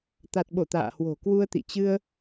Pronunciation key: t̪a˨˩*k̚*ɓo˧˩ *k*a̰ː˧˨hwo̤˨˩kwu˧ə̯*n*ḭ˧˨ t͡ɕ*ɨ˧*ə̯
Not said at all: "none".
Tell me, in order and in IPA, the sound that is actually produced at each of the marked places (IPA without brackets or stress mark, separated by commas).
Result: t̚, t̪, t̪, ɨ˧